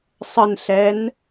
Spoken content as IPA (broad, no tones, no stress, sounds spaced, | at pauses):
sˤ ə n ɬ ɛ n